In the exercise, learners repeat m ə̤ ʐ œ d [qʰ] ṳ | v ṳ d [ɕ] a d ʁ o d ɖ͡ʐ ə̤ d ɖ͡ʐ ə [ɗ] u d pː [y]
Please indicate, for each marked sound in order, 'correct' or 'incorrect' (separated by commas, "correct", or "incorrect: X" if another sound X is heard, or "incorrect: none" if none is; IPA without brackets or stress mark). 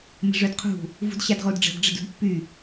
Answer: correct, correct, incorrect: d, correct